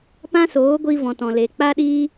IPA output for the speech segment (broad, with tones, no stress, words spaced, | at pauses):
pã˦soː˨˦ɡʷi˧ vɔ̃˨tɔ̃˨le˨ k͡pa˦ɗiː˦